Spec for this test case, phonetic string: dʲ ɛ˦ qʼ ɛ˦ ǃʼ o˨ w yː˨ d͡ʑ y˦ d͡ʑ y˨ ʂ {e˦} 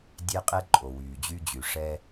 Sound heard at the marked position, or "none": ɛ˦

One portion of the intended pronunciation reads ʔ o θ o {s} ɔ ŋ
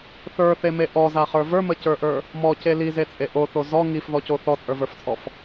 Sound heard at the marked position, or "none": z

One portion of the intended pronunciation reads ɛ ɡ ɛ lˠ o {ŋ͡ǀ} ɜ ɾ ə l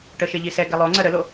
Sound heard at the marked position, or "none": ŋ͡ǀ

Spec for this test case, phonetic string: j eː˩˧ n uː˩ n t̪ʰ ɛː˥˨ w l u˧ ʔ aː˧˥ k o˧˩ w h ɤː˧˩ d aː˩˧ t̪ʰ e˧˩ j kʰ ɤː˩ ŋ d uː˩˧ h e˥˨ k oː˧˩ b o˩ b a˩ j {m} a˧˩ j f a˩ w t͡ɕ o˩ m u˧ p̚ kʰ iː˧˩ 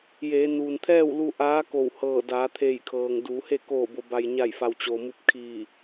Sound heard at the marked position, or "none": ɲ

